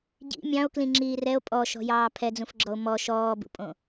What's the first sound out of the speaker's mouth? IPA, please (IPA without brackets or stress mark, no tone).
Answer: ɟ